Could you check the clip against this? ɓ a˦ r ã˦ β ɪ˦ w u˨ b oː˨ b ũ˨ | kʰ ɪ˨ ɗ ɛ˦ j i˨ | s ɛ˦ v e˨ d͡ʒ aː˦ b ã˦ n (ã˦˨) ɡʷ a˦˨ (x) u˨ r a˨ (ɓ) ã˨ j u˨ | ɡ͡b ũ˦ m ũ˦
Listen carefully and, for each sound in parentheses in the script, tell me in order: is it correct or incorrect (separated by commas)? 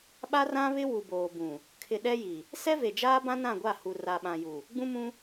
correct, incorrect, correct